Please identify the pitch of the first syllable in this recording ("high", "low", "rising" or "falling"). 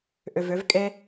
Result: low